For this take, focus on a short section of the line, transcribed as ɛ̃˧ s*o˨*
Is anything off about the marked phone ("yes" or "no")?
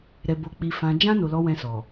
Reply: yes